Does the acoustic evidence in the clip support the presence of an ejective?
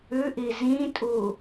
yes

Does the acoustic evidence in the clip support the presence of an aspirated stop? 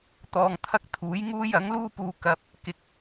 yes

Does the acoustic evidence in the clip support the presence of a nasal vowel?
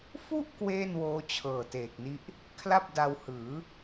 no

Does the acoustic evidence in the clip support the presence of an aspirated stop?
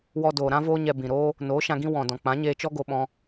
no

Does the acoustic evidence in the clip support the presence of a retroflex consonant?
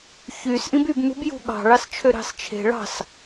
yes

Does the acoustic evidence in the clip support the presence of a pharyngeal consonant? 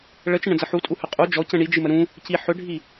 yes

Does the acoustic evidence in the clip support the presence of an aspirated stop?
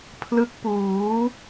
yes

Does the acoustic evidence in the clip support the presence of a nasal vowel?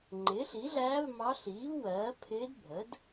no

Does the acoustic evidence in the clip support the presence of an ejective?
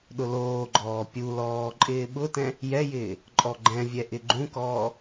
yes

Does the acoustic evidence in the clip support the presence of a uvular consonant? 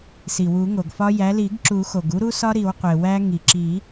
yes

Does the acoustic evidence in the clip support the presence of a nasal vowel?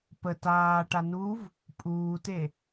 no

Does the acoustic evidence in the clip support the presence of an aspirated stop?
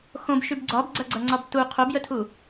yes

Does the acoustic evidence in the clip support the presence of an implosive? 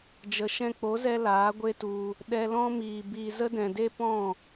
yes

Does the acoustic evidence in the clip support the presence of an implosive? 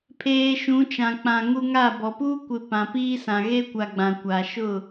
no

